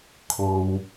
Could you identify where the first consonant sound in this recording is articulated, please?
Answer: velar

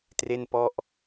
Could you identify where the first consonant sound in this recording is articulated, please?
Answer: alveolar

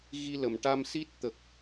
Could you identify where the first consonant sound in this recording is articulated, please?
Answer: velar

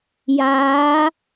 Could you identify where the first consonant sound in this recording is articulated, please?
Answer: palatal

